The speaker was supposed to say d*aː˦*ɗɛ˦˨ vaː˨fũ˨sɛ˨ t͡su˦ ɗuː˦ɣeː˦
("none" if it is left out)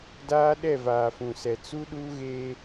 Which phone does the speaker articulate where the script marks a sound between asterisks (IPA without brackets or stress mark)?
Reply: aː˦